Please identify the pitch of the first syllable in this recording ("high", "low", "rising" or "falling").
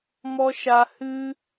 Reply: high